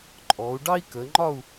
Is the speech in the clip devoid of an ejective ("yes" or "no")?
no